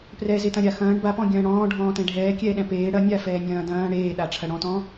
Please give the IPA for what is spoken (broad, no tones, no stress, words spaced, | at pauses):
prɛzetɐ̃ ɾʲaxɐ̃ːɳ bapɔ̃ ɡʲɐ̃ːɽɔ̃ː ɖʱɔ̃ːtɛ̃ɖʱɛː kʲɛːɗɛ̃peː ɽɐnʲa fɛːnʲɐ̃ːdɐ̃ː ɽeːɗaʈ͡ʂʰɐ ɽɔ̃tɔ̃